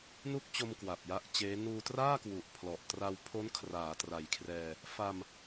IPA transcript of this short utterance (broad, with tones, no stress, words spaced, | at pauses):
nu˥˩k̚t͡ɕo˧m kwa˨˩p̚ja˦˥ʔt͡ɕeː˦˥ nuː˧traː˥˩kwu˨˩ʔ pʰlɔ˨˩ʔtra˧wpʰo˦˥n kʰraː˩˦tra˨˩jkʰrɛː˧ | fa˧m